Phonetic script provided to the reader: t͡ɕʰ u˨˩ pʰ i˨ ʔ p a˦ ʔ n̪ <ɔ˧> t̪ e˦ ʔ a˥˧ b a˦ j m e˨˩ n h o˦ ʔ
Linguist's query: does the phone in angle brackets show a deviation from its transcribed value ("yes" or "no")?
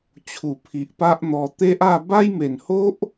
no